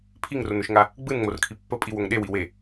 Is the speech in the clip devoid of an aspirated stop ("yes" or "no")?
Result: no